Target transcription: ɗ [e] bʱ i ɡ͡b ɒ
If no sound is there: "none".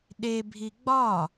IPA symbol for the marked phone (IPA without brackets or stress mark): e